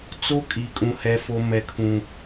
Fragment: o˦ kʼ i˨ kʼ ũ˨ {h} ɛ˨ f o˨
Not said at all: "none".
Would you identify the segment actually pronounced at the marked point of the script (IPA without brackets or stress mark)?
h